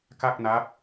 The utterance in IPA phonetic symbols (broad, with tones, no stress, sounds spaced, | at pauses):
k a˥˩ k̚ n a˦˥ p̚